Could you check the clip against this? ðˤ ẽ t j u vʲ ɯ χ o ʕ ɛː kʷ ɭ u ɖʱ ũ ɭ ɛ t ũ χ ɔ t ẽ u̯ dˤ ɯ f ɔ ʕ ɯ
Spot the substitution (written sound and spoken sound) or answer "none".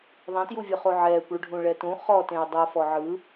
none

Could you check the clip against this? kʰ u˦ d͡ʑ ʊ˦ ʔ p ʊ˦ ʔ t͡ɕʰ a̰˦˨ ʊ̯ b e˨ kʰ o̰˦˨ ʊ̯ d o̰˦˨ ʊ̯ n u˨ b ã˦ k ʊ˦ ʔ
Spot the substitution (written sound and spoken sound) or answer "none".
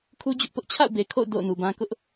none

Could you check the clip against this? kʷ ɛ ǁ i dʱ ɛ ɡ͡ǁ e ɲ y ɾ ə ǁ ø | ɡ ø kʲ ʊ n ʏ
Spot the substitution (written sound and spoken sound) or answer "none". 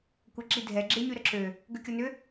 none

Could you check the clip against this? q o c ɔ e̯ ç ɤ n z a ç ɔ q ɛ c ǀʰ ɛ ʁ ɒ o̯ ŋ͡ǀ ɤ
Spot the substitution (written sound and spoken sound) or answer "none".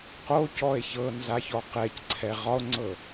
none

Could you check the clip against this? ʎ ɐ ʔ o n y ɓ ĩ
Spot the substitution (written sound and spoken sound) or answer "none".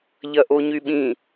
n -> ɲ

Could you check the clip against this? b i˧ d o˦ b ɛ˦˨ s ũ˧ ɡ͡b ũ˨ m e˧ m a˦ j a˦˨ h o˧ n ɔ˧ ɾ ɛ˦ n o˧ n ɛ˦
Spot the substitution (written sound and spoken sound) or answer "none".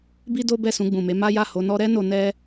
i˧ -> i˦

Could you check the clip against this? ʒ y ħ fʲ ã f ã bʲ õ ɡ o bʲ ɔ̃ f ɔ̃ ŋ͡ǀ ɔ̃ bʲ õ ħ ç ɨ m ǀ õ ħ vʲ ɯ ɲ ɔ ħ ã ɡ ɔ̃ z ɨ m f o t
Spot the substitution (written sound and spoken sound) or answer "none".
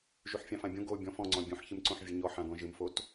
z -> ʒ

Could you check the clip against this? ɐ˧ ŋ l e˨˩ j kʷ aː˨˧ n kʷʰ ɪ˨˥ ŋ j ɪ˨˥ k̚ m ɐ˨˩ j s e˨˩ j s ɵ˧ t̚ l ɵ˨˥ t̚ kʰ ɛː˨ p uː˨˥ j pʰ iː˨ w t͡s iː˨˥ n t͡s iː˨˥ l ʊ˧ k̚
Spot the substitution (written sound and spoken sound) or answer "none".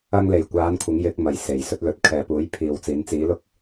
none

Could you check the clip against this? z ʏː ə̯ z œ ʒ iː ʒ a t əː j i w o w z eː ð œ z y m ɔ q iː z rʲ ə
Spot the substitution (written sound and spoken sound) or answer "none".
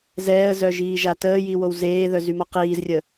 ʏː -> ɛː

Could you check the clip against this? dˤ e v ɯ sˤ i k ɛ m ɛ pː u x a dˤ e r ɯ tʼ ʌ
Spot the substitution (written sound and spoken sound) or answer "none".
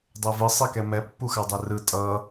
none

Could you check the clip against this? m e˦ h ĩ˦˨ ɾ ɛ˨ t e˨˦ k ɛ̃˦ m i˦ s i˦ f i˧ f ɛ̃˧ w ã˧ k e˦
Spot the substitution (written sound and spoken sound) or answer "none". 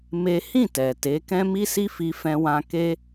ɾ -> t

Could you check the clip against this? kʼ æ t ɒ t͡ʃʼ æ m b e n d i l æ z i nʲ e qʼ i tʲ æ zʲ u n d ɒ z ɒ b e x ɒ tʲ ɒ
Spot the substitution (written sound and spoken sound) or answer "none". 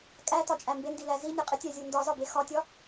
none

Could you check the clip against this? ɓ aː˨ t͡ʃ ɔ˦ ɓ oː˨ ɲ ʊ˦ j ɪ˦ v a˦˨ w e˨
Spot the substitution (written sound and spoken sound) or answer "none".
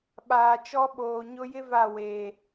none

